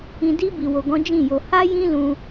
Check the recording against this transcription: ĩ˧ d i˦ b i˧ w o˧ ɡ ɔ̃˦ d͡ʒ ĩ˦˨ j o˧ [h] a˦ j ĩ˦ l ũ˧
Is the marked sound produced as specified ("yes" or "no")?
yes